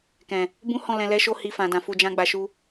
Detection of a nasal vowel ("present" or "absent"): present